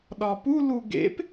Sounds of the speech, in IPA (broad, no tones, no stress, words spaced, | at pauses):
ɗɒpu luɡḛp